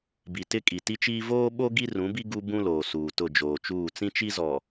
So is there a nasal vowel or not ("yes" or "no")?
yes